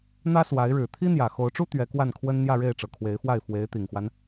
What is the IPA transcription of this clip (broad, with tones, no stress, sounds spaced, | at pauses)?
n̪ ä˥ s w a˧˥ ɪ̯ ɻ ɻ̩˨˩ t̪ʰ i˥ n̪ j ä˨˩ x o˧˥ ʊ̯ ʈ͡ʂ u˥ t̪ ɥ ɛ˧˥ k w a˥˩ n kʰ w ə˥ n n̪ j ä˥˧ ɻ e˥˩ ɪ̯ ʈ͡ʂ ɤ˨˩ kʰ w e˧˥ ɪ̯ f w a˥˩ ɪ̯ f w e˧˥ ɪ̯ t̪ i˨˩ ŋ x w a˦ n